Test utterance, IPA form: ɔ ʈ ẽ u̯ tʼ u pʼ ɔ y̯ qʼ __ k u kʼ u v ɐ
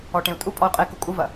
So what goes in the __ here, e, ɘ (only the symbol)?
e